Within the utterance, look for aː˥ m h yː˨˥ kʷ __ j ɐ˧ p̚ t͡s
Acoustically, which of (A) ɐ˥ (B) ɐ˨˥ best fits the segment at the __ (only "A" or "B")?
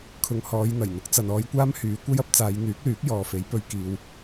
A